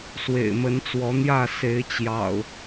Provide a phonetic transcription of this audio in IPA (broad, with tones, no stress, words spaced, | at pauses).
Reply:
swḛ˨˩ɪ̯mə˨˦nt͡swɔ˨˦n̪jä˥˨ se˨˦ɪ̯ t͡ɕjɑ̰˨˩ʊ̯